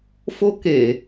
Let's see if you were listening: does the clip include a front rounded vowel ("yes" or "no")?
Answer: no